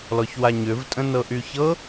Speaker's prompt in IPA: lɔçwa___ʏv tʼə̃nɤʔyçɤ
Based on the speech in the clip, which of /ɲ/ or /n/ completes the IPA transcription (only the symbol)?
ɲ